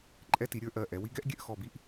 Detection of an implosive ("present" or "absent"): absent